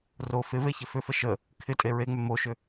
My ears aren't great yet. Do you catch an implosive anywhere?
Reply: no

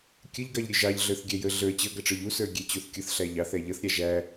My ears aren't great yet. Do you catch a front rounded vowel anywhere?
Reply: no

